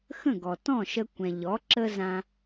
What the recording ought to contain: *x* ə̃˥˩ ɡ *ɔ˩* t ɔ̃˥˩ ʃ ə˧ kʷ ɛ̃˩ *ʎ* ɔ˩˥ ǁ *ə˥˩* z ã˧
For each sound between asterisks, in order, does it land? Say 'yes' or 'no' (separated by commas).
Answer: yes, yes, yes, no